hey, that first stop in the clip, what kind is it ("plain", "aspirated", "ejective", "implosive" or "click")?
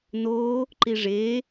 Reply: click